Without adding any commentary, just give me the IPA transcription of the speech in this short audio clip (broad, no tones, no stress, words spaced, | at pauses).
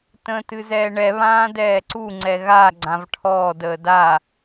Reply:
tə̃ːtɨzɛːɳɛ βãːdɛːǀu ŋ͡ǀɛɣa ɡ͡ǀãvʈʰɔːd əːda